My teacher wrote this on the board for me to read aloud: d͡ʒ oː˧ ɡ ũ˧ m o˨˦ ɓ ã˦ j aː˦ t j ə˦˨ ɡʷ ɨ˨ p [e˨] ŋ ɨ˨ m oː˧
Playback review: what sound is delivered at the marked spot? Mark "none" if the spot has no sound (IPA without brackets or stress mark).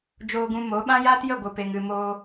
e˨